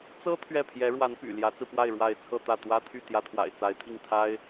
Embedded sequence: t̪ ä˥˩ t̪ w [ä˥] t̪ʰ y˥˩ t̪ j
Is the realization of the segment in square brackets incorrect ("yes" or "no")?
no